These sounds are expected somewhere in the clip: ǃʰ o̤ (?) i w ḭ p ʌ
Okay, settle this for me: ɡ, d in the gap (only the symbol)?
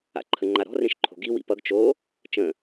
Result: ɡ